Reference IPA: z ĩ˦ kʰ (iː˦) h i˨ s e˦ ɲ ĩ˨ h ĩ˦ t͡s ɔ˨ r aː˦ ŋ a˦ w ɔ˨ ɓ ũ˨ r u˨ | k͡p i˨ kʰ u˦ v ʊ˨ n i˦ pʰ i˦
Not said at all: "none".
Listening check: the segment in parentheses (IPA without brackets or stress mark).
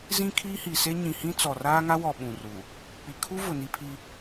iː˦